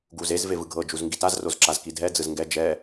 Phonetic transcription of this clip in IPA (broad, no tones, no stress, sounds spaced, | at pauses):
ɡ u z e z v e v ɯ ɡʱ ɤ d͡ʒ u z ŋ ɡ i t a z r o z ǁ a z k i dʱ ɛ d͡z ɯ z ŋ ɡ ɛ d͡ʒ ɛ